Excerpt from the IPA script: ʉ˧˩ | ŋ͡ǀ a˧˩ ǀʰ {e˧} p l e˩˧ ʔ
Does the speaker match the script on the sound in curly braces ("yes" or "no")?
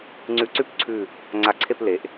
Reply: no